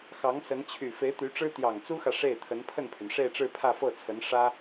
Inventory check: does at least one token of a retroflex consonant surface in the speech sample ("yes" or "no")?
yes